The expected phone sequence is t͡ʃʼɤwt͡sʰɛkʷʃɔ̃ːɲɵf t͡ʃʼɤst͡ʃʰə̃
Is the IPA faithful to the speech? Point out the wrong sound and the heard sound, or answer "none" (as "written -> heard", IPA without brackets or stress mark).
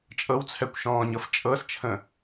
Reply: ɵ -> ɤ